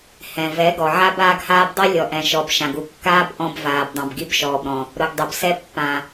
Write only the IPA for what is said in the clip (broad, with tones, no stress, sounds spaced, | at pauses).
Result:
h ɛ̃˨ v ɛ˨˦ ɡ ɔ˨ ʕ a˦ b aː˦ ɡ h aː˦ b dˤ i˦ lʲ ɔ˨ ʔ ɛ̃˨ ʃ ɔ˨ b ʃ ã˨ ɡ u˨ kː aː˦ b ʔ ɔ̃˦ b v aː˨ b dˤ ã˨ b ɡ i˦ b ʃ ɔː˨ b ɾ ɔ̃˨ | ɾ ʊ˨ ɡ dˤ ʊ˨ b s ɛ˦ pː ã˨